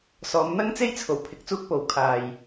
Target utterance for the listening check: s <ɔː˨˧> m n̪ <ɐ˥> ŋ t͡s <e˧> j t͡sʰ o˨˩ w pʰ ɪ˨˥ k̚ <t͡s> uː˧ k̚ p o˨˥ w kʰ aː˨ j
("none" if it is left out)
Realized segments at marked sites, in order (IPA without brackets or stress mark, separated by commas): ɔː˨˧, ɐ˥, e˥, t͡s